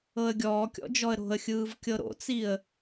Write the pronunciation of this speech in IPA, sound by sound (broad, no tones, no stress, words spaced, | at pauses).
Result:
ɤə̯ɡʲɔːkʲɔ̰d͡ʒɔə̯ ɾo̤ə̯xʲɯːv kʲɤɾo̰t͡siə̯